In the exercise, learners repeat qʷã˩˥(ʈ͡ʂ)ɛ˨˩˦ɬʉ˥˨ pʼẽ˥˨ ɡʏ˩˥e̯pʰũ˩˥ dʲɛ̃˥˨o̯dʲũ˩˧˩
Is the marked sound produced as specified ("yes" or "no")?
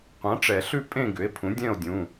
yes